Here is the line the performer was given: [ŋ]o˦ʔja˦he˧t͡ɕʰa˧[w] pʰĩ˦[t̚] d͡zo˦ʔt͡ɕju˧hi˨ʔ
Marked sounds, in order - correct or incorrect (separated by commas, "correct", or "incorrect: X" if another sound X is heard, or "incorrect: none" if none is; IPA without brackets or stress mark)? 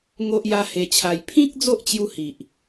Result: correct, incorrect: j, incorrect: k̚